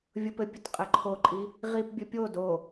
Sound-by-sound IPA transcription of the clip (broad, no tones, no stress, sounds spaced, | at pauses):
vʲ ʊ p ɘ pʲ ʊ t qʼ ɘ ǃʰ o ǃʼ i | ʁ i p bʲ ɵ pʲ o d o